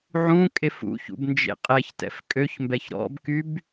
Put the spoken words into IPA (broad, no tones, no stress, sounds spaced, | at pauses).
ʕ ũ kʼ e f ṵ ç ṵ b n d͡ʒ ḛ qʼ ɛ ç t ɛ̰ f kʼ ø ç m b ɛ ç ɾ ɔ̰ b k y b